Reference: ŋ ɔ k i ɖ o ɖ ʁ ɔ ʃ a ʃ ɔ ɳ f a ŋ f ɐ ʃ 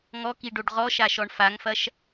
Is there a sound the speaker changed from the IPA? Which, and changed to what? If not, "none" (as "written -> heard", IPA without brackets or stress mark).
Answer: none